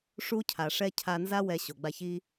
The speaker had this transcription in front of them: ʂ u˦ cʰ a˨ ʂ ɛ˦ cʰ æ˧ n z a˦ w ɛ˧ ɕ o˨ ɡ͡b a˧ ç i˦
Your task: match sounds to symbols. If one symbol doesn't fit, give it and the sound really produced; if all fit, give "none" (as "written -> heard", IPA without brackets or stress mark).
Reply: æ˧ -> a˧